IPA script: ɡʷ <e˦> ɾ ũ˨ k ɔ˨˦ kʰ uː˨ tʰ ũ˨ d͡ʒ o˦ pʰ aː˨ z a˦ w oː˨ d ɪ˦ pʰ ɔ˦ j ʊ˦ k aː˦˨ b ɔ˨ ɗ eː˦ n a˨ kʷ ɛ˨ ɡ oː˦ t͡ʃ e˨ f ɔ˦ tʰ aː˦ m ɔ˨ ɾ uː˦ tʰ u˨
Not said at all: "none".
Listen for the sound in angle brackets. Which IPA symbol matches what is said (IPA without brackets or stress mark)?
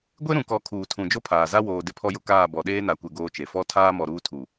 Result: e˦